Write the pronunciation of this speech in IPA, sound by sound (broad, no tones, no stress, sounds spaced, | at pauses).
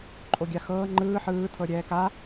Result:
ǃʼ o ɡʲ a x ɤː ŋ͡ǃ ɯː ħ ɯː tʰ ɤ ɾʲ ɛː k a